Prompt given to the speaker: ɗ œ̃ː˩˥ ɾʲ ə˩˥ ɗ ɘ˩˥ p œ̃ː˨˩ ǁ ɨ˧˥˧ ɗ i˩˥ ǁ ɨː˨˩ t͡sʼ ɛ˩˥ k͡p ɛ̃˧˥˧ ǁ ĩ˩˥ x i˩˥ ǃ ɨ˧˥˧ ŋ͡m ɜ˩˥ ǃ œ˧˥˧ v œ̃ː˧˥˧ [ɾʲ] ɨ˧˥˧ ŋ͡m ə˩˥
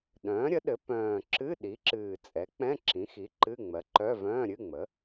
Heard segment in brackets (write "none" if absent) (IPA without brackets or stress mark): ɾʲ